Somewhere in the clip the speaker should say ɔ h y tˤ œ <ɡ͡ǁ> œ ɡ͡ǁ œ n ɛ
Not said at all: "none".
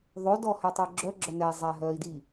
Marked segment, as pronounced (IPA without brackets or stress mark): ɡ͡ǁ